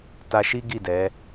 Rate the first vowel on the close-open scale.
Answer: open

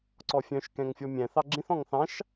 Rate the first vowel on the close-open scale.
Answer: mid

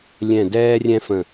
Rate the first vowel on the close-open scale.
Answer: mid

